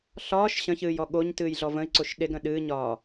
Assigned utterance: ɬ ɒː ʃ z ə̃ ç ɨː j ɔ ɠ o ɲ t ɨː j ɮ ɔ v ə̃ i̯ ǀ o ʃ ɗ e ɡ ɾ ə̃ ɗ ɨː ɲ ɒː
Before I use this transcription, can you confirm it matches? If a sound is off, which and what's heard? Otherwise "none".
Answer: z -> ɕ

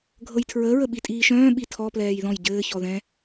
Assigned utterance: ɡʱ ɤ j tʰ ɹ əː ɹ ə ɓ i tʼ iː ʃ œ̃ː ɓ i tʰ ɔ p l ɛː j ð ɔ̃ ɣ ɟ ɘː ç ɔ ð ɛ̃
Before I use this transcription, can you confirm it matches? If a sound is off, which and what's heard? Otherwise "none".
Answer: ɣ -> j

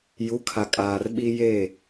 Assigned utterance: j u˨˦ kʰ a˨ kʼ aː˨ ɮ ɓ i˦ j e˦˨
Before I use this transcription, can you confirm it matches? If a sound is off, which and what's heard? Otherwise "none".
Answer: ɮ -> r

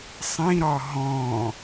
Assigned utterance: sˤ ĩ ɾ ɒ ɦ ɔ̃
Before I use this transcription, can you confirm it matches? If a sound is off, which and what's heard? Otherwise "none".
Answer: none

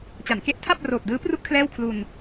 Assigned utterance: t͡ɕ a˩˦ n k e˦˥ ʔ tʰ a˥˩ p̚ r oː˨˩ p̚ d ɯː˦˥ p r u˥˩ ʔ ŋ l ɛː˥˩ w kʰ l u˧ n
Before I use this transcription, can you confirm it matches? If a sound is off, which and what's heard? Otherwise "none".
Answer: ŋ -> kʰ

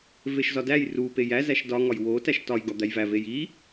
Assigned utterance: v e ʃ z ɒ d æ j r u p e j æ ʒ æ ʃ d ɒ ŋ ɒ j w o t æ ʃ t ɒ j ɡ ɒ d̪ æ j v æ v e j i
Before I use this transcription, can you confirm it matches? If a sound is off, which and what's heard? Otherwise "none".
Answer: ʒ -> z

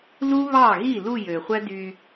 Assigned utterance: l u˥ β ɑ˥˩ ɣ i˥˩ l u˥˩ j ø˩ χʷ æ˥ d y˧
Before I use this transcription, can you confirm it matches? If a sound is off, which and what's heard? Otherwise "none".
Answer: none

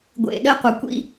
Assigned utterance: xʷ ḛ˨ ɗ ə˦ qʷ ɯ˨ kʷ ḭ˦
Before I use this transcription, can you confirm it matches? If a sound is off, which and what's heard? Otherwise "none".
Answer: xʷ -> ɡʷ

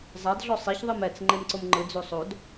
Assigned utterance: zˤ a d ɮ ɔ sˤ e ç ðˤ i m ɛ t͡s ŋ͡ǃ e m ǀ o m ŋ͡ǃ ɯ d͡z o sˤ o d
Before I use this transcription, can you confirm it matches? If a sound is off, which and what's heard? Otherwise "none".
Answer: none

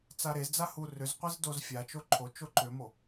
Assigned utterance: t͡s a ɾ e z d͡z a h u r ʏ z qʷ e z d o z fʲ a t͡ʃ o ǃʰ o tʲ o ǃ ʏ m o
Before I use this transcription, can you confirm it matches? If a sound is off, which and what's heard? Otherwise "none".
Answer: tʲ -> t͡ʃ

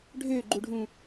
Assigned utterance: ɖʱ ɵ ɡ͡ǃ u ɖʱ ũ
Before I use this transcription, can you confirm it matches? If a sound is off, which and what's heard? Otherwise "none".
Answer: ɵ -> ø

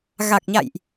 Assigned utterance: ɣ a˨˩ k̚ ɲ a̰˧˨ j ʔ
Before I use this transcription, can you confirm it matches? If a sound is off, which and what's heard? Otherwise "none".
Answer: none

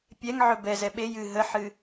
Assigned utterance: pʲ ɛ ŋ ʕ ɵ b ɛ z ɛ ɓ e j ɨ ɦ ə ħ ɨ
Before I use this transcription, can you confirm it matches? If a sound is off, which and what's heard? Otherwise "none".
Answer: none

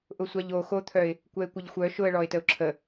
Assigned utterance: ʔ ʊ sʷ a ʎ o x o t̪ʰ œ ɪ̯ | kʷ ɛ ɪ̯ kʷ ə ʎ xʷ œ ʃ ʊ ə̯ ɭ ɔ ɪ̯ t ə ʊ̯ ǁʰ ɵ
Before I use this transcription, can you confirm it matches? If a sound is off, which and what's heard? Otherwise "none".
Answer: ɵ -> ə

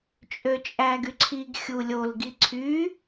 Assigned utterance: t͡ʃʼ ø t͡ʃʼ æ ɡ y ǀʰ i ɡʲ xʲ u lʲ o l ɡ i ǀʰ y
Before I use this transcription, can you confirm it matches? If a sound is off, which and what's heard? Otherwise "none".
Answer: ɡʲ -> ɡ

